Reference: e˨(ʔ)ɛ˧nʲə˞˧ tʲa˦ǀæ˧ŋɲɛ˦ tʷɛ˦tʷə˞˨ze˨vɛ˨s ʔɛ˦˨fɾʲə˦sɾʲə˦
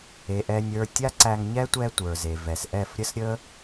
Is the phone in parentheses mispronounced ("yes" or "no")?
no